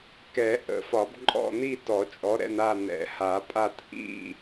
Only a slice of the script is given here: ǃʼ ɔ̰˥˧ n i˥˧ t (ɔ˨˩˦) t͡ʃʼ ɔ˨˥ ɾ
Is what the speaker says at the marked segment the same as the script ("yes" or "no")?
yes